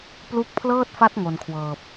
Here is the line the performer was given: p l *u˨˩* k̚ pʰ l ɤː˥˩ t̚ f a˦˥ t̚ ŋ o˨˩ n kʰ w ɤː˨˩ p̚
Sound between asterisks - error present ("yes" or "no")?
yes